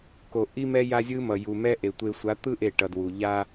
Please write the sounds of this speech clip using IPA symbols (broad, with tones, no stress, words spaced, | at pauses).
ko˨ʔi˦mɛ˦ ja˦zʲɯ˦ mʌ˨ju˨mɛ˦ʔe˨ tʷe˨sʷa˨˦t̪ɯ˦ ʔe˦˨ʈʌ˨dwu˨ ʎa˦